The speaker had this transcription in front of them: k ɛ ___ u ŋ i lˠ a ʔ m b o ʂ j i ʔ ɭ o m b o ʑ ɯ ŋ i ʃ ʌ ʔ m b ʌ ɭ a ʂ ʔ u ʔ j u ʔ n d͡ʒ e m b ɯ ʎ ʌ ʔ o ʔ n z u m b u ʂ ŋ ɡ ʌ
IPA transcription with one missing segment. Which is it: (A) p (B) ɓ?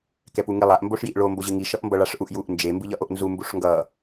A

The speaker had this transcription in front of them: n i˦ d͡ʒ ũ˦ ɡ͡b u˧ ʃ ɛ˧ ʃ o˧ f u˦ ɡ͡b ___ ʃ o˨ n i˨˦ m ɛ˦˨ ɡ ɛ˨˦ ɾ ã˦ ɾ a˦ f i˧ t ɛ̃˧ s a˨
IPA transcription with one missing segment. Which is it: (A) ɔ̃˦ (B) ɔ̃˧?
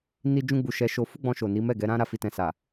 B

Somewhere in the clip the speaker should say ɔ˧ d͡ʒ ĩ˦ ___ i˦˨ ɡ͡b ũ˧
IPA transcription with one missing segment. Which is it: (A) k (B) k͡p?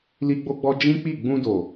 B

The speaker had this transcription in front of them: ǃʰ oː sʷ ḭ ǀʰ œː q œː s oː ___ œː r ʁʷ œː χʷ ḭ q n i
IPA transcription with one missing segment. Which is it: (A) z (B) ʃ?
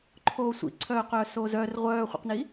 A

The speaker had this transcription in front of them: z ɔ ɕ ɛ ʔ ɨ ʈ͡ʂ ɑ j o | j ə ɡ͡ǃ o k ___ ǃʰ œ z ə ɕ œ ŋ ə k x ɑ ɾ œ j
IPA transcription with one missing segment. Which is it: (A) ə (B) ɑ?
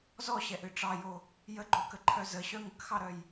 A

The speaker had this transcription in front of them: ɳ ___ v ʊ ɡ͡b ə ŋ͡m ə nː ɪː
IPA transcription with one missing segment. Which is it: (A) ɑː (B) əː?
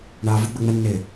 A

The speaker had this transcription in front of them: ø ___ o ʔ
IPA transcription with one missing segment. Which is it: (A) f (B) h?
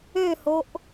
B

